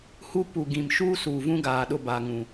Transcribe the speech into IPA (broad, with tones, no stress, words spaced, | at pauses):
hu˦ pu˨ɡĩ˨m ʃuː˦suː˨vũ˦ɡaː˨ ɗʊ˦˨baː˨ ŋũ˨